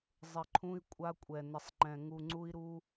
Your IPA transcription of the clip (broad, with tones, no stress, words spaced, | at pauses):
zˤɪ˨ǃʰũ˦i̯ kʷʼa˦kʷʼɛ˨ nɪ˨sˤŋ͡ǃɛ̃˨ ŋu˨ŋ͡ǀu˦i̯ɾu˦